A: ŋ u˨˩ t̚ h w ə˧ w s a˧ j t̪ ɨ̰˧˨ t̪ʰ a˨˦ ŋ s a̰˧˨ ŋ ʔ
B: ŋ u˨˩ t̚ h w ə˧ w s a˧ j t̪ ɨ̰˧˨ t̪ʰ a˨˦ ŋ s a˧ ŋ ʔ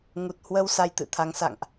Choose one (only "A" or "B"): A